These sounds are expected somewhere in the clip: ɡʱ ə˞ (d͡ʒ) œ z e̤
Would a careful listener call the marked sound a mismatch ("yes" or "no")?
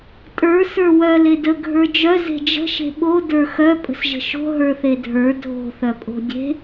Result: no